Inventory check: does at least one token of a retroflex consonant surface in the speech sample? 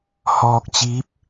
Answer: no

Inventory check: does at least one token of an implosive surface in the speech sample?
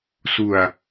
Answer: no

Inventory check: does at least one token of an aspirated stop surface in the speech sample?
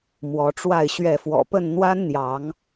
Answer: no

